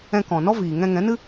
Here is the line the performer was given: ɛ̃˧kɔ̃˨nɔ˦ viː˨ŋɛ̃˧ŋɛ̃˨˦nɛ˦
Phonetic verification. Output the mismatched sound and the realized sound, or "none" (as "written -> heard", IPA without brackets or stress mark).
ɛ˦ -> ɨ˦